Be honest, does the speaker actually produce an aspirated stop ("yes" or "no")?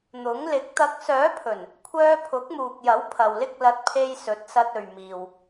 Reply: yes